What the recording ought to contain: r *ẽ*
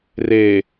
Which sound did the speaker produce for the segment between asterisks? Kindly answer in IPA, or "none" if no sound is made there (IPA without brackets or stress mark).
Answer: e